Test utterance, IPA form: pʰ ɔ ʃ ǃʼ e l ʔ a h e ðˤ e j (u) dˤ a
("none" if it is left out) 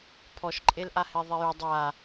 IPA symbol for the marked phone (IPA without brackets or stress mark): u